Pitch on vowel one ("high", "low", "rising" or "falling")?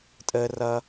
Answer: high